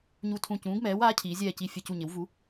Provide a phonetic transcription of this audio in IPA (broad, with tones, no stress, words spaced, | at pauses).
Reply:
ɲu˦˨tʰũ˦˨ cũː˨˥ɡmɛː˨˥waː˨˥cʰiː˩˧ zʲɛː˦˨ci˦˨ fʲɛ˦˨cu˦˨ɲɪ˨˥wvu˨˥